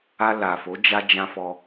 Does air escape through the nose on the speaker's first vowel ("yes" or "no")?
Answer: no